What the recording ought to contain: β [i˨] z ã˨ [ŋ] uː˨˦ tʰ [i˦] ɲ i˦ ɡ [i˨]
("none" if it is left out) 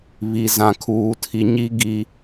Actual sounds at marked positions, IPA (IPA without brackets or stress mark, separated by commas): i˨, kʰ, i˨, i˨